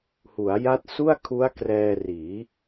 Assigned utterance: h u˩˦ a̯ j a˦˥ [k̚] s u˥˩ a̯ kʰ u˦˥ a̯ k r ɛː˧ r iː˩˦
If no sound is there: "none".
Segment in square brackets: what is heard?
t̚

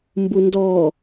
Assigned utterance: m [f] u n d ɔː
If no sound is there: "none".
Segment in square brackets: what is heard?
b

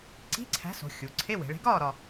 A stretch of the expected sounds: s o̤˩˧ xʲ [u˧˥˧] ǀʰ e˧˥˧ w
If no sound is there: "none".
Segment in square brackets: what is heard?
u˩˧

